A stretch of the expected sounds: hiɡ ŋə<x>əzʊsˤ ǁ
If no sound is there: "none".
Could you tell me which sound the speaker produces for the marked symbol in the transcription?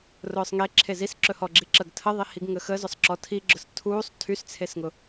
x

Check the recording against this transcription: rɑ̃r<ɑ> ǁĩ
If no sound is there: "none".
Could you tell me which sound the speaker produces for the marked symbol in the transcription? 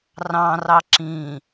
ɑ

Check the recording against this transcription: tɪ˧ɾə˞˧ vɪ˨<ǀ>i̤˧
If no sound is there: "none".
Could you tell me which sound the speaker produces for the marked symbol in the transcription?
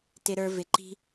ǃ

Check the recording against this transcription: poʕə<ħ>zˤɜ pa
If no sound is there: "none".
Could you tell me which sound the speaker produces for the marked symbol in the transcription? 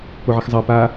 x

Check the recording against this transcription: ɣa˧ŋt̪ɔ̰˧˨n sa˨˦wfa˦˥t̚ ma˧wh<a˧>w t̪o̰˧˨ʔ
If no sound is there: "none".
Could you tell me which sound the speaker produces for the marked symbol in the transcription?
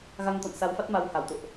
a˧˩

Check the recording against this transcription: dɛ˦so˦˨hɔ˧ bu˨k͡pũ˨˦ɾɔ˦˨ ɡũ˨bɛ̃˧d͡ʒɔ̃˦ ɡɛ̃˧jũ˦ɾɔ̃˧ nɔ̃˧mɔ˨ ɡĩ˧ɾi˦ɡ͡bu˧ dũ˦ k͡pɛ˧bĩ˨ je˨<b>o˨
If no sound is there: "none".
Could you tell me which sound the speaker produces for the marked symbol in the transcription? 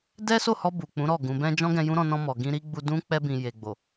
ɡ͡b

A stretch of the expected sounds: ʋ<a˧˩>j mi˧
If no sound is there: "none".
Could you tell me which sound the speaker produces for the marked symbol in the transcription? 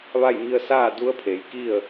a˥˨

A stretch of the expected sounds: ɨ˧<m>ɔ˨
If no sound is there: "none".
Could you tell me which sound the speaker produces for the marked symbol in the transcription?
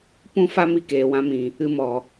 m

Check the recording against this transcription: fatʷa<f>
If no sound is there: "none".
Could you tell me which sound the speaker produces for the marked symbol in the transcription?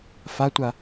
none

